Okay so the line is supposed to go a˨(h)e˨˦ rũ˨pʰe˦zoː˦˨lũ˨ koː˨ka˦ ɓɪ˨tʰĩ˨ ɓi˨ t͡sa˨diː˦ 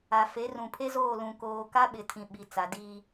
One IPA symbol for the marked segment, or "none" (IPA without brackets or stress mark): f